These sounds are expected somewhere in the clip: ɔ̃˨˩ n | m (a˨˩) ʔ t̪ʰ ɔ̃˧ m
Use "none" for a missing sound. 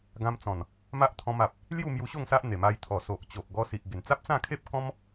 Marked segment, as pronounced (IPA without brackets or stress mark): a˦